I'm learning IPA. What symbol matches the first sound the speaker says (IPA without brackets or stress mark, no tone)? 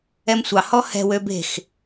ɛ